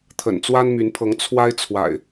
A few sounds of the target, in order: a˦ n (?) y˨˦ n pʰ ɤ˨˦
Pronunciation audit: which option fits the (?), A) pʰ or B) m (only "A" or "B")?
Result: B